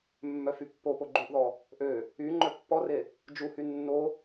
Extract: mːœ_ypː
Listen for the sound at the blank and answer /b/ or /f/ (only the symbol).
f